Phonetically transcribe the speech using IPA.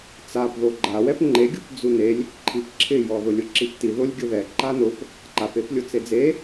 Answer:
t͡s a p ð o ɡ͡ǃ a w ɛ p ŋ͡ǃ e ɡʲ u p d͡z u n e lʲ | ǃʰ i p ǁʰ ɪ j ɔ ð ʊ lʲ ʊ ǁ i p t i ð ʊ lʲ ɡʲ ʊ ð ɛ ǃ a n ʊ p | ǃ a p e p lʲ ʊ t͡s e d͡z e

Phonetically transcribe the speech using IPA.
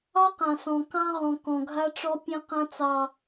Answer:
ɑ˦ q ã˨ s ɔ̃˨ k ɑ̃˦ ʁ ɔ̃˨ k ɔ̃˨ ɡʱ a˦ ʈ͡ʂ ɔ˦ pʲ ẽ˦ q ã˦ t͡s ɑ˨

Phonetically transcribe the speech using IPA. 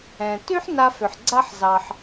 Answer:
ɛ̃˩ t y˥ ħ n a˧ f ʏ˩ ħ ɡ͡ǀ a˧ ħ z ɑ˩ ħ

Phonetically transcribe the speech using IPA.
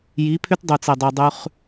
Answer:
j i˨˦ pʰ ʏ˦ t dˤ u˨ t͡s e˨ dˤ u˨ dˤ ʉ˦ χ

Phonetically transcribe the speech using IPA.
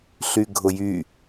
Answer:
ɬ y ɡʱ ʊ j y

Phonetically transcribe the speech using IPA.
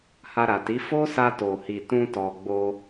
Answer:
h a˧ ɾ a˨ t i˨˦ f o˦ s a˧ t o˨ h i˨ t ũ˧ t ɔ˨ ɡ͡b o˧

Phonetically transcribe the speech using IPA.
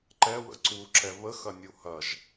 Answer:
ǃ ɛ w ə̰ ǀ u ǁ ɛ β ə x ɐ nʲ u h ɐ ʒ

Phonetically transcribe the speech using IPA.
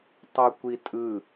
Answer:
tˤ ɤ kʷ i tʼ ɯ

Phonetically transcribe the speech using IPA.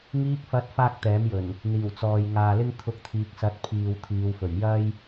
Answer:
ŋ iː˧ k̚ f ɐ˨˥ t̚ f aː˥ k̚ t̪ ɛː˨˥ m j ɵ˨˩ n | n̪ iː˨˩ w t͡s ɔː˨ j ŋ aː˨ l ɪ˥ ŋ t̪ʰ ʊ˧ k̚ t̪ʰ iː˨ k̚ s ɐ˨˥ t̚ pʰ iː˨ w t̪ʰ iː˨˧ w f ɵ˨˩ ɥ j ɐ˥ j

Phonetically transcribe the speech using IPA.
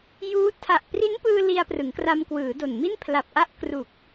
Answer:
j uː˦˥ tʰ a˨˩ ʔ p r i˦˥ n p ɯː˧ l i˧ a̯ p r ɯ˩˦ ŋ k r a˧ m k w ɯː˩˦ d o˨˩ n m i˥˩ n pʰ l a˨˩ p̚ ʔ a˦˥ ʔ k r u˨˩ k̚

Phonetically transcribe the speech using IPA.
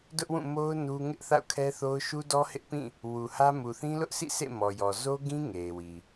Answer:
d ʊ˦ ʔ w ũ˦˨ m o˦ ʊ̯ n u˦ ŋ ɪ˦ ʔ θ a̰˦˨ ʊ̯ kʰ ɛ˦ θ o˦ ʊ̯ ʃ u˦ d ɔ˦ h ɪ˦ ʔ p ĩ˦˨ | w u˨ h ä˦ m u˨ θ ĩ˦ l ʊ˦ ʔ sʰ ḭ˦˨ sʰ ḛ˦˨ m ɔ˨ j ɔ˨ z o˦ ɡ ĩ˦ ŋ e˨ ɪ̯ w i˨

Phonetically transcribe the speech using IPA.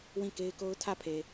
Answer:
w ĩ˦˨ k e˦ ɪ̯ k o˦ ʊ̯ tʰ ä˦˨ pʰ e˨

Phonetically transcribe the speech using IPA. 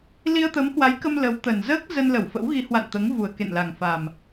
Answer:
l i˧ ə̯ t̪ ə˨˦ m h w a˨˦ j k ə˧ m l ə˨˦ w t̪ ə˨˩ n z əː˦˥ k̚ z ə˧ n l ə˧˩ w f ə̰˧˥ w ɣ i˨˦ h w a̰˧˨ n t̪ əː˨˦ ŋ v u˨˩ ə̯ k ḛ˧˨ n l a˨˩ ŋ f a˨˩ m

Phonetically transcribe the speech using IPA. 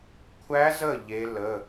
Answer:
kʷʰ æ˦˥ z ə˥˨ ʎ e˦˥ l ə˧˥˧

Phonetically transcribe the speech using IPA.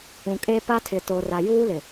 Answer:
ũ˨ kʼ e˦ p a˦ tʰ ɪ˨ t o˨ r a˨ j uː˦ l ɪ˨

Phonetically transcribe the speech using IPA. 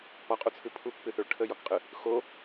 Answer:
p ɒ qʼ u t͡sʰ ɨ pʰ u k p ɨ θ ɵ ɭ ʈʰ ə j ɒ k qʼ ɨ | x o

